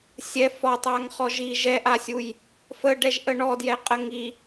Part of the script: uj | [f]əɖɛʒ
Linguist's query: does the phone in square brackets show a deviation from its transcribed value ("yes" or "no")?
no